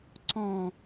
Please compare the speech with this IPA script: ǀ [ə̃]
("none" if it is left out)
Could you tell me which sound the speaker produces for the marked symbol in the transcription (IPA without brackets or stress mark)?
ɔ̃